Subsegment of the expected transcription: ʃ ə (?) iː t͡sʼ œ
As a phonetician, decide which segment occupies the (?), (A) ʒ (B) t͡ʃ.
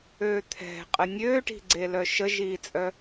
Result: A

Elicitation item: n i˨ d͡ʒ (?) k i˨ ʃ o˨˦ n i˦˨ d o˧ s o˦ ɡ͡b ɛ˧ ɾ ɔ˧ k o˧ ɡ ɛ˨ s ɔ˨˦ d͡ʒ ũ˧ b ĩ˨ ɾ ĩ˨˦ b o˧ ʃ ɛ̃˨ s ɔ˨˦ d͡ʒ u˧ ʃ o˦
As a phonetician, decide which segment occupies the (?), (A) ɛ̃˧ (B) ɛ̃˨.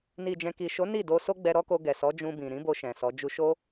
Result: B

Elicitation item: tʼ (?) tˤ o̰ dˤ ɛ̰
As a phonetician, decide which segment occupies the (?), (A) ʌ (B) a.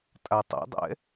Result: B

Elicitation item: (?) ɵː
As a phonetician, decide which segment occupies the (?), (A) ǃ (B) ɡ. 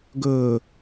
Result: B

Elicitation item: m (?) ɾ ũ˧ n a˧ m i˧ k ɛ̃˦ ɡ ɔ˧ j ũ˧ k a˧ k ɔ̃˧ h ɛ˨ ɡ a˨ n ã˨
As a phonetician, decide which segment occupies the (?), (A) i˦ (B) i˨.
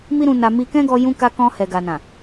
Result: A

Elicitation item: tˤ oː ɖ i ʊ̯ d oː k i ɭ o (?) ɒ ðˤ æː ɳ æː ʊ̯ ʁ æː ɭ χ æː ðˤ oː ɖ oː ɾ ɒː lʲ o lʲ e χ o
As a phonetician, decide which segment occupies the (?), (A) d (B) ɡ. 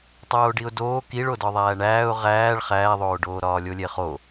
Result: A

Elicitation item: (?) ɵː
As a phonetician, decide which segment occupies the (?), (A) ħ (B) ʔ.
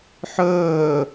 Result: A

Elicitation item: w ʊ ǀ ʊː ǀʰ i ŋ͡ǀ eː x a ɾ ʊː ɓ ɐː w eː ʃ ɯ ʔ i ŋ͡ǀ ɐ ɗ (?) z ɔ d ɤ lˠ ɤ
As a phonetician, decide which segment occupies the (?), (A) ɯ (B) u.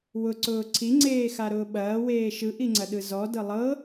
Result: A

